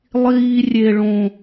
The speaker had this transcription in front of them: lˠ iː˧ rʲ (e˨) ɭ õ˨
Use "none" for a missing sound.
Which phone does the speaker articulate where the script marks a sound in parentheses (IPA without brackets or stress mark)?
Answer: e˨